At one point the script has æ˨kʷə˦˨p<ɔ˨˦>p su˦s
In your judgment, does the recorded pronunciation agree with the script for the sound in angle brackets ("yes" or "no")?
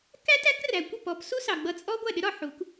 yes